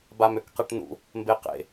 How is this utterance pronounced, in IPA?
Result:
b a m ø k q e ʈ n ṵ | m b e q ḛ

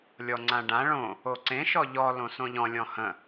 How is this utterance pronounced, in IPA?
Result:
lʲ ɔ ŋ͡ǀ ã ɖ ã ɭ õ | o ǀ ẽ ʃ ɔ ʎ ɔ l õ s õ ʎ ɔ̃ lʲ ɔ̃ h ə̃

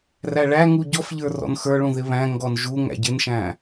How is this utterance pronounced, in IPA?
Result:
r æ ɭ æ ŋ u ɟ ɔ f ʎ ə˞ r ɔ̰ n x ə˞ ɭ ũ ð ɪ β æ̃ ŋ ɡ ɔ n ʒ u ŋ æ̰ ɟ ɪ n ʃ æ̃

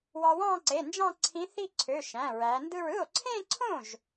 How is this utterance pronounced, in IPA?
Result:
w ɑ˧ w ɑ̃˥˧ ǀ e˩˧˩ n d͡ʒ ɑ̃˥˧ ǀʰ ĩ˧˥ θ i˥˧ ǀʰ ø˩˧˩ ʃ æ̃˩˧˩ ɹ æ˩˧ n d ɯ˥˧ ɹ ɯ˥˩ o̯ ǀʰ ẽ˥˧ ǀʰ õ˥˩ ʒ

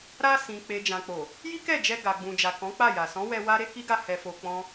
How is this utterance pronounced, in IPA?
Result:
ɾ a˧ s ĩ˨ k͡p e˨ d͡ʒ ã˨ k͡p o˨ | j i˦ k ɛ˦˨ d͡ʒ ɛ˧ ɡ a˨ ɡ͡b ũ˨ d͡ʒ a˨ k ɔ̃˨˦ k͡p a˦˨ j a˨ s ɔ̃˨˦ w ɛ˧ w a˦ ɾ e˦ k i˦ ɡ a˦˨ h ɛ˧ f o˧ k͡p ɔ̃˦

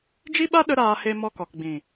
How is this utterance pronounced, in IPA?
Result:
d͡ʒ i˦ ɓ a˦ ɗ ə˦ ɾ aː˧ h e˧ m ɔ˧ k ɔ˨ k ɡ͡b ĩ˨

